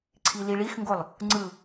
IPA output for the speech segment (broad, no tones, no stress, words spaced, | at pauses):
ǀʰiliɭixŋɡolˠ | ŋ͡ǀɯ